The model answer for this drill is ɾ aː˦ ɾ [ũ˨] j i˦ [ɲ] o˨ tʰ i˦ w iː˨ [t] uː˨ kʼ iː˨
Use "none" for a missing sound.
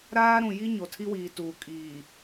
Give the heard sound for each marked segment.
ũ˨, ɲ, t

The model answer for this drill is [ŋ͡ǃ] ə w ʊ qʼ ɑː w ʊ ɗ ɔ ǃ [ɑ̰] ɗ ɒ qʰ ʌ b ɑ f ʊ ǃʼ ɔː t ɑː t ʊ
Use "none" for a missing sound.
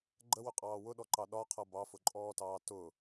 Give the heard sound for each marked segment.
ɡ͡ǃ, ɑ

